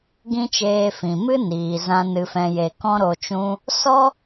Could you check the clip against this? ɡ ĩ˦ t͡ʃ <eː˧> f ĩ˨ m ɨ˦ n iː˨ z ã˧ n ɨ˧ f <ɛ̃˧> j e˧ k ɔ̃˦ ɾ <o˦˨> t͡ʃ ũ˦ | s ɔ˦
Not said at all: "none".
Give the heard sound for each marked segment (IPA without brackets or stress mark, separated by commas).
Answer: eː˧, ɛ̃˧, o˧